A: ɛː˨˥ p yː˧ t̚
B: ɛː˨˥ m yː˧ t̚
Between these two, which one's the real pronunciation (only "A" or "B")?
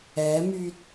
B